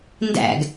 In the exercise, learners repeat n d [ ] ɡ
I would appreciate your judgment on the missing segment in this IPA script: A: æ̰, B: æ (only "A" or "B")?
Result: A